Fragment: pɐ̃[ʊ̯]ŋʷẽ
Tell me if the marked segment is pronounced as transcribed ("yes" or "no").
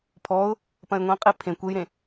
no